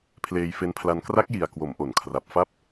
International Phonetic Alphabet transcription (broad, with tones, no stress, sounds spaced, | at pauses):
pʰ l eː˧ j f e˦˥ n pʰ l a˧ n k r a˦˥ k̚ j i˨˩ a̯ k w o˩˦ m ʔ o˩˦ n kʰ r a˨˩ p̚ f a˦˥ p̚